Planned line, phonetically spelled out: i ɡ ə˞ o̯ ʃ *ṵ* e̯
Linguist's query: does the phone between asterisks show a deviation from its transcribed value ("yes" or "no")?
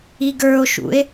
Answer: no